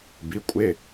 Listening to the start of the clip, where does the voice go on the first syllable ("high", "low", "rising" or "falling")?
rising